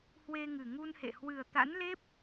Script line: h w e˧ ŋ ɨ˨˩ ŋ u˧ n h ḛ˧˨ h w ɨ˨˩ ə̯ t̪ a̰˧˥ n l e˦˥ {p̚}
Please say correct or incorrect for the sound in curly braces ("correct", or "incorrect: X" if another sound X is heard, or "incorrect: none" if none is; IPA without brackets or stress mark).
correct